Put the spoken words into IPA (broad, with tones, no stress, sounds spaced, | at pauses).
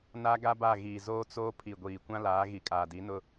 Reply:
n a˦ ɡ a˦ b a˦˨ ɣ iː˨ z oː˦ t͡s oː˦ pʰ i˨ ɡʷ iː˨ kʷ ã˦ l aː˨˦ ɣ i˨ kʼ aː˨ d i˨˦ n ʊ˦